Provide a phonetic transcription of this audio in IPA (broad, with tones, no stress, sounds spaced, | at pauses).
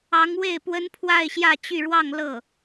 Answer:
ɑ˧˥ ŋ w e˥˩ ɪ̯ p w ə˥ n pʰ w a˥˧ ɪ̯ ɕ j ä˥˧ t͡ɕ y˥˧ ɻ w ɑ˥˧ ŋ l ɤ˥˩